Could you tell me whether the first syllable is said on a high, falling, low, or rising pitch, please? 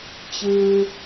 low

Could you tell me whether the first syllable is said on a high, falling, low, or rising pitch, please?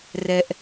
low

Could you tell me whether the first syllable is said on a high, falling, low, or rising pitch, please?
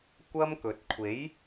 high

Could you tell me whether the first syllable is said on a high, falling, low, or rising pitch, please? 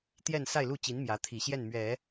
falling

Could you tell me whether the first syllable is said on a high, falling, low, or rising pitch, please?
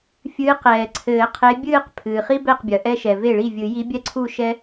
rising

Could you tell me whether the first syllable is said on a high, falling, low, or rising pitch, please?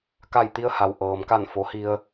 falling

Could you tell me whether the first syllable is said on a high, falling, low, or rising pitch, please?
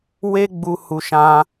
high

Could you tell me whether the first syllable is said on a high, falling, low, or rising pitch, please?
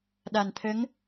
low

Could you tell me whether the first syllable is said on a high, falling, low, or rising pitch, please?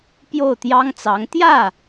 falling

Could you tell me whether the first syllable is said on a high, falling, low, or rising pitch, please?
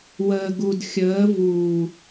low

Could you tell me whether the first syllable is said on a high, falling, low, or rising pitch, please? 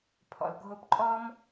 low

